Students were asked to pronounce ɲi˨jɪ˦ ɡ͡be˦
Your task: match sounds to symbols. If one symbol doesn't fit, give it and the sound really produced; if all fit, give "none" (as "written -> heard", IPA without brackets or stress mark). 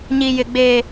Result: ɪ˦ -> ɪ˨